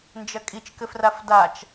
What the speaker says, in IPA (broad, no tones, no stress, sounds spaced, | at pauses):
n d͡ʒ ɐ kʼ i t͡ʃ k ɘ f r a f d a t͡ʃ